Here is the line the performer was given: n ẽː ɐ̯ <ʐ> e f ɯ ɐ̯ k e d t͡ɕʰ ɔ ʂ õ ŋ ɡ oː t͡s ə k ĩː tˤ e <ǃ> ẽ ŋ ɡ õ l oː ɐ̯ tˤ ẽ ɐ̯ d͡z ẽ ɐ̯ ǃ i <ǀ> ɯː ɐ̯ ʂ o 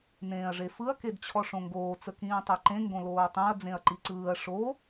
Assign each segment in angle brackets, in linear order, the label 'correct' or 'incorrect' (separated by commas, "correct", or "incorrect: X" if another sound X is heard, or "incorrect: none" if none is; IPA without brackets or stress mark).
correct, correct, correct